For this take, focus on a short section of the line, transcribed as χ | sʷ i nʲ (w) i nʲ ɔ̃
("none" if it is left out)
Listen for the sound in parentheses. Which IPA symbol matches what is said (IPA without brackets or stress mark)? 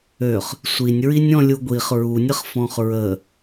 ɹ